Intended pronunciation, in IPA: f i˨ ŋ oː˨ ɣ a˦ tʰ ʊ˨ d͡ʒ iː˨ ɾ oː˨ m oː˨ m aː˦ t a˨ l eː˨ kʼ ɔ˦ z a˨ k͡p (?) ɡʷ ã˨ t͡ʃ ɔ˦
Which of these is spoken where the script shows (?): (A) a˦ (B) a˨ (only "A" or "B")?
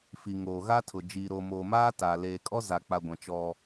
B